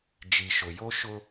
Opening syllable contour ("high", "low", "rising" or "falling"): low